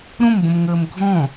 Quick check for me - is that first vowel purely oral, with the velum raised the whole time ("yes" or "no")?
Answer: no